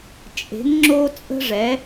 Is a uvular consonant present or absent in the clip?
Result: absent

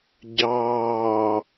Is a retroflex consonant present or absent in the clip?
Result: absent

